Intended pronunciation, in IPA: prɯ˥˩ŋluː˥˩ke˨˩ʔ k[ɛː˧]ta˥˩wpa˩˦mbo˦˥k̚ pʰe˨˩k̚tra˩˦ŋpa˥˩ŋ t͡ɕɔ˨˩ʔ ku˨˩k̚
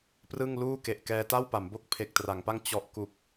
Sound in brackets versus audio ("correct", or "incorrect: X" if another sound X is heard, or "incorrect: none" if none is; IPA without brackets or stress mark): correct